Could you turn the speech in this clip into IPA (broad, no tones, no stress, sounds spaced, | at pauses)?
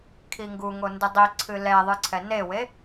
kʰ i ŋ ɡ u ŋ o n d ɨ dˤ i ǀʰ ɨ l ɛ ðˤ ɨ ǀʰ ɛ n e w e